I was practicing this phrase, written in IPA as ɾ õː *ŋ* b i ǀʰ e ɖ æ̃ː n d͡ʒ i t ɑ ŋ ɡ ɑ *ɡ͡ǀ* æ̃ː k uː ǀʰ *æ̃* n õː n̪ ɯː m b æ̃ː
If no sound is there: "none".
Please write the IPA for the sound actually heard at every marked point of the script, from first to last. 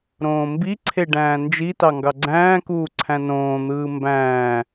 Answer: m, ɡ͡ǀ, æ̃

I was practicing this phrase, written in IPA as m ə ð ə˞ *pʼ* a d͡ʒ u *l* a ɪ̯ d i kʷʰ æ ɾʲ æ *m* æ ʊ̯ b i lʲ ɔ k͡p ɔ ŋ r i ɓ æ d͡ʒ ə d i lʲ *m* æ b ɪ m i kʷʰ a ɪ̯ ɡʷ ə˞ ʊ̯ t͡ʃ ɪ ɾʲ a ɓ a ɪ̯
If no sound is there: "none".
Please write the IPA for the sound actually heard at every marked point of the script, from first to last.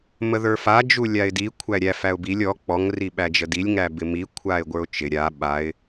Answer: f, lʲ, f, ŋ

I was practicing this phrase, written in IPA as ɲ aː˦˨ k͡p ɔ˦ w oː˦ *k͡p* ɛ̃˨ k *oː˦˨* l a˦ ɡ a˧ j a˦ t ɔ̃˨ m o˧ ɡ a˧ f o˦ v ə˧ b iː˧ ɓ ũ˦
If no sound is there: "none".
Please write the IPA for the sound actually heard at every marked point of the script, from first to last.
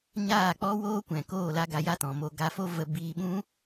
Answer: kʷ, oː˦˨

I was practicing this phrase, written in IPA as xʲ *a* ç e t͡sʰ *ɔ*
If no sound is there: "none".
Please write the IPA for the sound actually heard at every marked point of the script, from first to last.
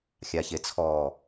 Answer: a, ɔ

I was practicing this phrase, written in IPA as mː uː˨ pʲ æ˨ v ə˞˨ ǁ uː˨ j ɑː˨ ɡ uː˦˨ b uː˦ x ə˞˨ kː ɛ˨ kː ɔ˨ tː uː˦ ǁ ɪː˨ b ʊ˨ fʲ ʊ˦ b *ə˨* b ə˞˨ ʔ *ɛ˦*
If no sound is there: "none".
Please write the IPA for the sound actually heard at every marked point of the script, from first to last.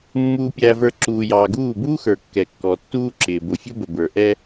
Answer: ə˨, ɛ˦

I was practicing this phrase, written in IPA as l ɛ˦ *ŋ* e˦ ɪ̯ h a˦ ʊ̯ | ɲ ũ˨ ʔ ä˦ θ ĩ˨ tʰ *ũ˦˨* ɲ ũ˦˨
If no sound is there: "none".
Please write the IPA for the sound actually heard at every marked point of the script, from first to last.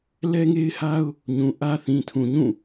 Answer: ŋ, ũ˨

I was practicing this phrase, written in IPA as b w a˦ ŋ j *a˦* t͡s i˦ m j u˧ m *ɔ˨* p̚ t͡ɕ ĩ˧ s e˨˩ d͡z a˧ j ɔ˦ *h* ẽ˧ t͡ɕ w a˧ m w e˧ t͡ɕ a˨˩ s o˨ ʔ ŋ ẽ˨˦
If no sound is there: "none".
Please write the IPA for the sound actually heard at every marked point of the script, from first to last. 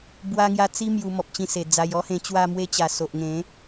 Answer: a˦, ɔ˨, h

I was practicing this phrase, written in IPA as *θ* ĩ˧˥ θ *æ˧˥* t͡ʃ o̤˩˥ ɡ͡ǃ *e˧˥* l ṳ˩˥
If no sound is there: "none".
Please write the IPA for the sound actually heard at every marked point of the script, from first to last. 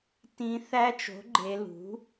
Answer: t, æ˧˥, e˩˧

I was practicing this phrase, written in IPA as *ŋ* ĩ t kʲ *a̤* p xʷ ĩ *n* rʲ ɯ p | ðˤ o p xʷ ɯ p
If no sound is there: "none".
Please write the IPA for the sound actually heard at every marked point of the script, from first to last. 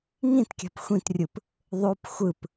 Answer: ŋ, a̤, t

